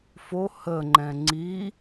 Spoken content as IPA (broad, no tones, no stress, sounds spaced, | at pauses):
f o h ə ŋ͡ǃ ɛ̃ ŋ͡ǀ i